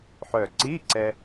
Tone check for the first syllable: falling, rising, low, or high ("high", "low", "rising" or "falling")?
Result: low